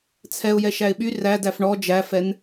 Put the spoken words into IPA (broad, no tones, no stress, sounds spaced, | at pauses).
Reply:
t͡sʰ ɛ ʊ̯ j ɛ ʃ æ ɪ̯ ɓ y r æ d æ f ɳ ɔ d͡ʒ æ f ɛ n